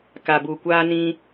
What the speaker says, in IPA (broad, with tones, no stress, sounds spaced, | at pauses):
k a˨ b u˨ kʷ aː˧ n ĩ˧